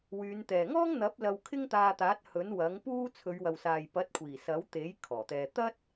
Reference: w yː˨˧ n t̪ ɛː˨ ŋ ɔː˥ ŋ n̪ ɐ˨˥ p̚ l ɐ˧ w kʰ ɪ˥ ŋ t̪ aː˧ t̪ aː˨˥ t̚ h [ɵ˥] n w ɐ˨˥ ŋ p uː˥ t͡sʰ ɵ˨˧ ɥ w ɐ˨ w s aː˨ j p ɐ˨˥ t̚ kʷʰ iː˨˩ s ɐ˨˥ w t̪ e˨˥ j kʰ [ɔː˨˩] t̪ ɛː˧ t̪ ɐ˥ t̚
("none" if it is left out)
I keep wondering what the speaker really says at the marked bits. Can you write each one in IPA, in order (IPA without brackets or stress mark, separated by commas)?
ɵ˨˥, ɔː˨˩